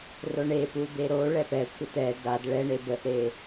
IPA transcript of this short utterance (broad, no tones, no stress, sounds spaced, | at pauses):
r o ɳ e p u d̪ e ɾ o ɭ ɛ p ɛ kʷʰ ə t ɛ d a d ɭ ɛ ɳ e b ə ʔ ɾ e